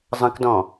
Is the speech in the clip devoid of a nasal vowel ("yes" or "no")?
no